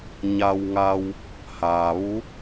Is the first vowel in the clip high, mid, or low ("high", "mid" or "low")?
low